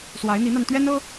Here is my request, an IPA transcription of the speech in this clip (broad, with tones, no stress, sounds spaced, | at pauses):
s w a˧˥ ɪ̯ n̪ i˧˥ n̪ a˧ n t̪ ɥ ɛ˥ n ɤ˥